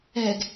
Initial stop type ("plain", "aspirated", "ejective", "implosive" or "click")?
plain